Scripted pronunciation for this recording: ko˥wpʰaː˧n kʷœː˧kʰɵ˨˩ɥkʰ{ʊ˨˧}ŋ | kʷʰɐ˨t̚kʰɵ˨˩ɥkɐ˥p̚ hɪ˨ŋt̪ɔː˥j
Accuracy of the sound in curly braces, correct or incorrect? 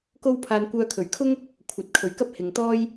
incorrect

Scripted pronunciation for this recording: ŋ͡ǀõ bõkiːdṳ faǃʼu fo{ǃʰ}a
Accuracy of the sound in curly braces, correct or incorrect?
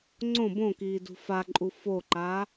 incorrect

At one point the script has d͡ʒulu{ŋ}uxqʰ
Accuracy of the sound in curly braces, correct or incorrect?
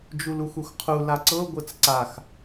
incorrect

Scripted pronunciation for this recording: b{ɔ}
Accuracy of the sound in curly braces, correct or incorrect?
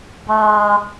incorrect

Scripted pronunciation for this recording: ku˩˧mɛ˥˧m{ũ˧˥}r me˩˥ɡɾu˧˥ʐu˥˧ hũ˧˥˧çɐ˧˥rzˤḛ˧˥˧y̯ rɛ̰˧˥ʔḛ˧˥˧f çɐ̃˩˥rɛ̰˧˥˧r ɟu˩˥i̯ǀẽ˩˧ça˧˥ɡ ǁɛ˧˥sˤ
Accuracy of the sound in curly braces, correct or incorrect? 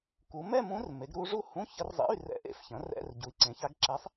correct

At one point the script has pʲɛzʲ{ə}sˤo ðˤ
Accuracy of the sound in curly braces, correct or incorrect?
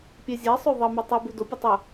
incorrect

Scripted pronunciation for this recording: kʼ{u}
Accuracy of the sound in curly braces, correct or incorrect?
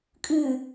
incorrect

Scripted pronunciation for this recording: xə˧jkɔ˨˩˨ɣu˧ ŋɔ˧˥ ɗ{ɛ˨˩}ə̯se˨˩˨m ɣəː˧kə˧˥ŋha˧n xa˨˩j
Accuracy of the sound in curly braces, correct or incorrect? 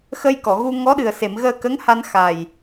incorrect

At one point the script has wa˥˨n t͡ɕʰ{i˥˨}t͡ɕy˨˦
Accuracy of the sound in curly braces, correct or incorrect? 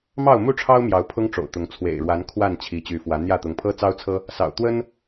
incorrect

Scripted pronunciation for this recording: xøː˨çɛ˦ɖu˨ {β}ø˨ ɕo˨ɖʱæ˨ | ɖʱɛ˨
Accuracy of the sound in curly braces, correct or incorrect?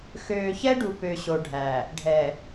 incorrect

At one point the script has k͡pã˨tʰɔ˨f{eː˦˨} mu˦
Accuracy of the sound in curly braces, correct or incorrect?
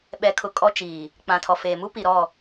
incorrect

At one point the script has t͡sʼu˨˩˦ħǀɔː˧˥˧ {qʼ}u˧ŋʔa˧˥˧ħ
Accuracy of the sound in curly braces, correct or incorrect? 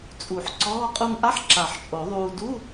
correct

